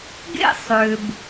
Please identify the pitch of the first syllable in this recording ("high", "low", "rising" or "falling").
high